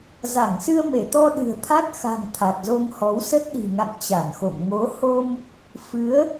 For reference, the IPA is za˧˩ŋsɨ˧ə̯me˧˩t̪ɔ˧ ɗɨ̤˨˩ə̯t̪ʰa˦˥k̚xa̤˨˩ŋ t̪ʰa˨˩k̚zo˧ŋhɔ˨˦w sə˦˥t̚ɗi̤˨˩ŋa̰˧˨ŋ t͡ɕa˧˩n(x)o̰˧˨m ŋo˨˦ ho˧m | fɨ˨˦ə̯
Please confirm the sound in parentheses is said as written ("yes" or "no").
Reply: yes